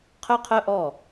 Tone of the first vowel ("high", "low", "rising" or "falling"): high